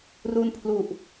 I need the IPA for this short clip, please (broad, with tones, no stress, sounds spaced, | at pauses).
r u˧ n pʰ l u˨˩ ʔ